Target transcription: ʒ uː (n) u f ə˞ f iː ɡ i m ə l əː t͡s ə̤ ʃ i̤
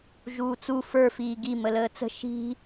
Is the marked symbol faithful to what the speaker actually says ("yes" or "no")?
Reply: no